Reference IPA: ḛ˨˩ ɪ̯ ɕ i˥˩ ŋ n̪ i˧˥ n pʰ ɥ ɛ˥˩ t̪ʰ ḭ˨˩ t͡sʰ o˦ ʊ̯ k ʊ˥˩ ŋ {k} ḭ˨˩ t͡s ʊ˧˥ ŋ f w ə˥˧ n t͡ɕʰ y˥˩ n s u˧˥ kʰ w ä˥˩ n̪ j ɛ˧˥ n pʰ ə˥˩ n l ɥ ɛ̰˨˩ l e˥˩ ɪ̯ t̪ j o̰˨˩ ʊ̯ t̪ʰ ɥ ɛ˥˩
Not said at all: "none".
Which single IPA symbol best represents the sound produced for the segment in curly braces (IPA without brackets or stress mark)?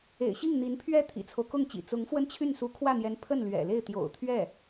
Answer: t͡ɕ